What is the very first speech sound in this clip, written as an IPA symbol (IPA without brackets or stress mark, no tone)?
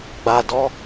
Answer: ɡ͡b